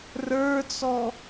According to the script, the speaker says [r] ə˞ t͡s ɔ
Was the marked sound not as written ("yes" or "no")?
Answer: no